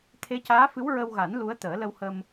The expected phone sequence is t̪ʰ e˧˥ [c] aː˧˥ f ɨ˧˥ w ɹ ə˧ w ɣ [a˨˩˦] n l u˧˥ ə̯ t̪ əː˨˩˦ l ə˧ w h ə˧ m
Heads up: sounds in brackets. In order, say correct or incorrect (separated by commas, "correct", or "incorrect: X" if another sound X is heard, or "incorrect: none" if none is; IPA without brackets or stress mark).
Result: correct, correct